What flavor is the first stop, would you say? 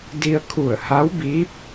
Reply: plain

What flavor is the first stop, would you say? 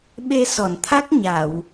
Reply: implosive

